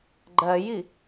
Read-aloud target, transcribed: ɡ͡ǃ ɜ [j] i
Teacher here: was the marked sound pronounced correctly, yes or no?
yes